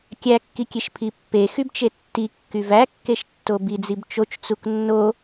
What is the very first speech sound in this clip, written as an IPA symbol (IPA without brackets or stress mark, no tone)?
kʲ